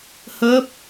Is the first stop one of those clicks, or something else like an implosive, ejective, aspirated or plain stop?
plain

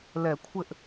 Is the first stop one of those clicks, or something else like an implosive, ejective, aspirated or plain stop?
aspirated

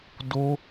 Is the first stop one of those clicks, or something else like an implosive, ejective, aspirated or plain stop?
plain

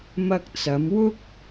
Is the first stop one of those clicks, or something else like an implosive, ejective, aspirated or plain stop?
plain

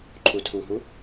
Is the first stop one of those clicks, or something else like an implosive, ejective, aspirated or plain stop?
click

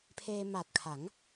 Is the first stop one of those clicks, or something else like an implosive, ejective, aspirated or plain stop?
aspirated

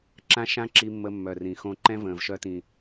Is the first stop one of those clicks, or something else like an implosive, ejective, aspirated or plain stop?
click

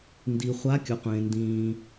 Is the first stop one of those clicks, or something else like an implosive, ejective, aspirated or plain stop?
plain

